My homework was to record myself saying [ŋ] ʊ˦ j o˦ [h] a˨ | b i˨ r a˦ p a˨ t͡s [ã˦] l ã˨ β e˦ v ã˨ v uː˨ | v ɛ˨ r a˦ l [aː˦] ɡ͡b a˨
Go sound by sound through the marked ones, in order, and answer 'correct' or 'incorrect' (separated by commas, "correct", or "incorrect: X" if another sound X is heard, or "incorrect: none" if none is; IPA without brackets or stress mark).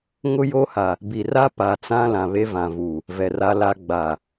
correct, correct, correct, incorrect: a˦